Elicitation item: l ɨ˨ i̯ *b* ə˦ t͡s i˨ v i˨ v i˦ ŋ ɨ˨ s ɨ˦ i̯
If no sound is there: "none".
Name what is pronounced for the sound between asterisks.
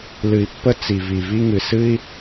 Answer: pː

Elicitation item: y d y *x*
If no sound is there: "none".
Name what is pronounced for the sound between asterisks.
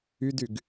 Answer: ɡ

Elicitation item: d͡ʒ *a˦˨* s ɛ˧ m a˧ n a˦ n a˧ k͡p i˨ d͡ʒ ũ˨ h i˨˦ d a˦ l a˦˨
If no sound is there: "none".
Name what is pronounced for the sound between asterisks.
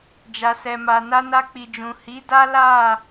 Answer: a˧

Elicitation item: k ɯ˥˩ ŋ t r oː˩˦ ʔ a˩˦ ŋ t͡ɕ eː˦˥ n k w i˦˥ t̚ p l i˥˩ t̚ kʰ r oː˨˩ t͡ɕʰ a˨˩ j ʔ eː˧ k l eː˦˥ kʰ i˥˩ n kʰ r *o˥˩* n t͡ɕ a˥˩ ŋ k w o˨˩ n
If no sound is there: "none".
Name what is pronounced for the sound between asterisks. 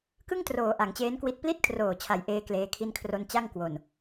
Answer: o˥˩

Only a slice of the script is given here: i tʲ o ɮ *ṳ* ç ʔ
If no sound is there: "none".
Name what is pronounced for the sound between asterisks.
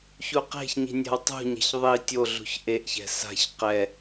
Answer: ṳ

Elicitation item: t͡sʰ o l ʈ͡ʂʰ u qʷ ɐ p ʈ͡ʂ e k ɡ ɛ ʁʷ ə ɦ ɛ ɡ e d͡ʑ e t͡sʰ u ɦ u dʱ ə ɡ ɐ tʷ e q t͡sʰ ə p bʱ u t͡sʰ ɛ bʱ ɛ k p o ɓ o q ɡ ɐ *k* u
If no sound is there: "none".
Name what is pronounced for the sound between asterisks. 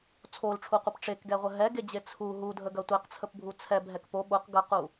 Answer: q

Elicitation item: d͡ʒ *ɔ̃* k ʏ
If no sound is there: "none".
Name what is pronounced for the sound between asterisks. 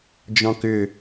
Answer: ɔ̃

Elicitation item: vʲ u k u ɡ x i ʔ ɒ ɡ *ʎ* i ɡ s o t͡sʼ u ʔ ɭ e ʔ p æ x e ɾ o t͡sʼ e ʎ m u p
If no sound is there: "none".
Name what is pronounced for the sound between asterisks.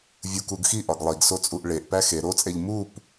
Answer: lˠ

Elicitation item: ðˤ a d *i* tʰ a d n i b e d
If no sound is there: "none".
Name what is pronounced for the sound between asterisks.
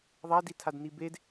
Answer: i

